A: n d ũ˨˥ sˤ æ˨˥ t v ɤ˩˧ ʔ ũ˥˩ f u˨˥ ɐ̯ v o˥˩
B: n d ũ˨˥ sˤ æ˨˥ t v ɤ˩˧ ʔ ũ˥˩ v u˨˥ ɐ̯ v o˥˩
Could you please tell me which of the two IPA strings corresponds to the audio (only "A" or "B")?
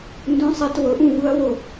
B